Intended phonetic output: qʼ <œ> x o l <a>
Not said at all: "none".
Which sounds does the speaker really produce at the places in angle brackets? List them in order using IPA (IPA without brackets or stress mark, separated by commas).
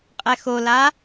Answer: ɛ, a